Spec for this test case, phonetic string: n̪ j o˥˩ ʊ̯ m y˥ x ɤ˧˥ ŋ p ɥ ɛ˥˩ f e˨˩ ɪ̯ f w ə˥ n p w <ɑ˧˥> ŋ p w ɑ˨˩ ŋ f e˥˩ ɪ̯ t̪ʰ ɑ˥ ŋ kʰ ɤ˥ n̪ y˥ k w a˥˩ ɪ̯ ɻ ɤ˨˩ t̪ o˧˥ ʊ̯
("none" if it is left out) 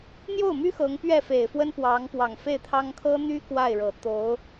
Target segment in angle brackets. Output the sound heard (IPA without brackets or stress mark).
ɑ˧˥